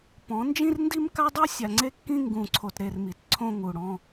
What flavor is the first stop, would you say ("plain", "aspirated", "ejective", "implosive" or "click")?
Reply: plain